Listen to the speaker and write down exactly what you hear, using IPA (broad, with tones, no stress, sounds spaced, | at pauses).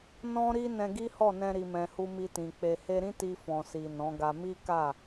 n ɔ̃˦ ɾ i˦ n ɛ̃˧ ɡ i˦ h ɔ˦˨ n ɛ̃˧ ɾ i˨ m ɛ̃˨ h u˧ m i˧ t ĩ˨ k͡p e˨ h e˧ ɾ ĩ˦ t i˧ f ɔ̃˨ s i˨ n ɔ̃˨˦ ɡ a˧ m i˦ k a˦˨